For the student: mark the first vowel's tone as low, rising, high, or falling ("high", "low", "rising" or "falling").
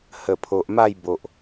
low